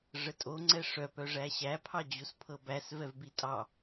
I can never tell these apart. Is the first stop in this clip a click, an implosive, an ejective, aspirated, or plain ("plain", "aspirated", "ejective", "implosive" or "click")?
ejective